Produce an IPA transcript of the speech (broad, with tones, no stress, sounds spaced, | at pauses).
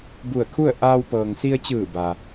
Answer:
b u˧˩ ə̯ kʰ u˥˨ ə̯ ʔ aː˧ w p ɤː˩ ŋ s i˧ ə̯ t͡ɕ ɯː˧˩ b a˩